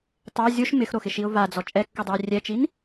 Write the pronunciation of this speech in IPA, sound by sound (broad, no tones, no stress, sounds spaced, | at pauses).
tˤ ɛ zʲ o ʃ m ɪ x ɾ o x ɪ ʃ i ʊ̯ v a d͡z ɔ t͡ʃʼ ɛ kː u dˤ u ɪ̯ rʲ ɛ t͡ʃ i n